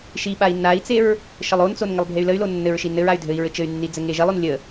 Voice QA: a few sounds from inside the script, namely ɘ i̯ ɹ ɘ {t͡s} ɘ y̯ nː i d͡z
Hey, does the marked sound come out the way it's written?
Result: no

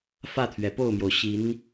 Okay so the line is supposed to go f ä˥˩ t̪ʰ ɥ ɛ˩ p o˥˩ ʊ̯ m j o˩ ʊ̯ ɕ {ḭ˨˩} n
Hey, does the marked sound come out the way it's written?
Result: no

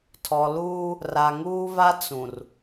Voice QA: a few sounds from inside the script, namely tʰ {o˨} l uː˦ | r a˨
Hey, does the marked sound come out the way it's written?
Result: no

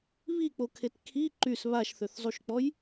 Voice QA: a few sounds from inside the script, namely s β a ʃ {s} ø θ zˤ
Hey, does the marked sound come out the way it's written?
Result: no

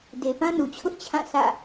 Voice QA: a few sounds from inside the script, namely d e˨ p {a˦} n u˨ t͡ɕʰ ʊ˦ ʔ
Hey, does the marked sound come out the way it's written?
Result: no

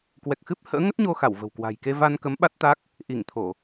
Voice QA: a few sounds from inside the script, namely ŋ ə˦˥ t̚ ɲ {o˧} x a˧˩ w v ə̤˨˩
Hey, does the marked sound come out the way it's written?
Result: yes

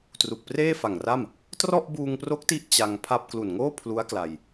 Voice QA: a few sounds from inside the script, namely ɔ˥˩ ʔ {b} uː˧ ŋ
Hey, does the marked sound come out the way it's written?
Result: yes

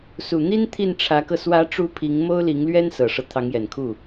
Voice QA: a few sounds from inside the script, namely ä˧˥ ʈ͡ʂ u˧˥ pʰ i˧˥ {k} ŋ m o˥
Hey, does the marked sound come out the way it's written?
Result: no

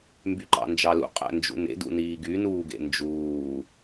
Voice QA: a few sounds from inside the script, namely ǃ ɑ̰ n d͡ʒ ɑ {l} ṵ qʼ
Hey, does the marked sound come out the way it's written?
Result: yes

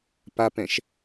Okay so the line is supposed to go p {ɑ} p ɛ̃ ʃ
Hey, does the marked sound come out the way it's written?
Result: no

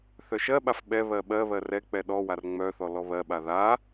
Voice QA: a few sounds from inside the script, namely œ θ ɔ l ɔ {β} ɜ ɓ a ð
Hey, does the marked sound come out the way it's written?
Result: yes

